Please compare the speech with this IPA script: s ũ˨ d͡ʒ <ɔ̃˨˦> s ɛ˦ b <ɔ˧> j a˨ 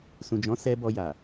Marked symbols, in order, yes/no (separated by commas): yes, yes